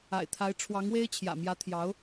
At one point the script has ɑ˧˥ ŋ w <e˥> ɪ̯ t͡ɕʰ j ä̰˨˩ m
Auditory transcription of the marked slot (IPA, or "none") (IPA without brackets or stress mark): e˥